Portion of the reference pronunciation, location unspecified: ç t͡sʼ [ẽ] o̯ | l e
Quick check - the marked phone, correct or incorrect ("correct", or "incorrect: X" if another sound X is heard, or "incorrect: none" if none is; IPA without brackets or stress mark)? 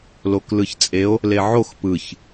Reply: incorrect: e